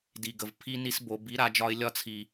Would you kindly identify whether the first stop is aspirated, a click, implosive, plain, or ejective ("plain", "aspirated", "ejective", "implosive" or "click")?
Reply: plain